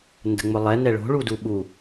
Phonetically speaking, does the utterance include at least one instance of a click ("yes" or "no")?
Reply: no